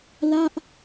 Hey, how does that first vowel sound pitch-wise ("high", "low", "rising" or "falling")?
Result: falling